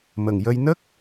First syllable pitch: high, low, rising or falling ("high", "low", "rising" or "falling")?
low